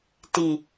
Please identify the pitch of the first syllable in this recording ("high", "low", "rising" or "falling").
low